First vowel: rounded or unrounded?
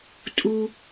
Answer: rounded